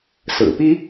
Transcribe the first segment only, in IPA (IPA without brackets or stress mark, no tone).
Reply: s